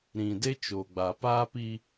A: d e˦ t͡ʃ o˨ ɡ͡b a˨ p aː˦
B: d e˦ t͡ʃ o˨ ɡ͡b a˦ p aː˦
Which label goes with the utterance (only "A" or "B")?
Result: A